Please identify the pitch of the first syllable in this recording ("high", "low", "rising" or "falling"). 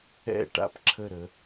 falling